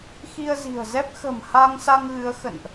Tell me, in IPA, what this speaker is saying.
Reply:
xi˧ə̯zi̤˨˩ə̯zɛ˦˥p̚ xə̤˨˩m ha˧ŋsa˧ŋɣɨ˨˦ə̯ xə̰˧˨nʔ

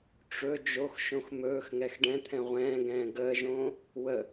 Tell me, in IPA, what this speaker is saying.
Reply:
ʈ͡ʂɵ d͡ʒoxʃõx mɵːxŋɛx ɖɛ̃t̪ʰɛ̃ ʁʷɛ̃ːɡɛ̃ː ɡəːʒõː | wə

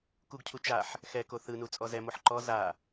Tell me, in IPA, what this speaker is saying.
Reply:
kuɡcʰu t͡ʃaħ | xɛko θɯnu t͡sʼɔzɛmoħ ǃɔ za

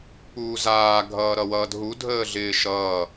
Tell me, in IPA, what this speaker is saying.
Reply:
puːzaː ɡʱʌːɾʌwʌːdɦu dʱəːɮɪːʃʌː

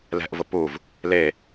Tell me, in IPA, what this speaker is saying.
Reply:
lɛ̤ʔvʊ puv | le

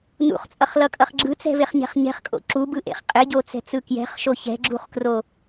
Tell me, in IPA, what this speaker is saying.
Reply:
nṵχt͡sʼʌχlʌkʼʌχ ɡ͡ǁɯt͡sɛ̤veχɲɛ̤χ ɲɛ̤χkʼo̰ ǁubɯʔḛχ qʼeɟot͡sɛ̤t͡sɯ kjɛ̤χʃo çɛ̤ɡ͡ǁuχkro

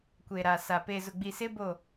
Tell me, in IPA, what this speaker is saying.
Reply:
kʷe˨ɾa˨sa˨ pe˨zʊ˨ɡ͡bi˨sɪ˦ bo˦˨

